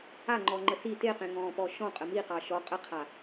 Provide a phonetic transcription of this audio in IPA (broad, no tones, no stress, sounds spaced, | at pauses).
a ŋ͡ǃ ɔ ŋ͡ǃ ə s i t e q ẽ ŋ ɔ̃ː p ɔ ʃ ɔ̃ qʼ ə m i q ɑ ʃ ɔ qʼ ə qʰ a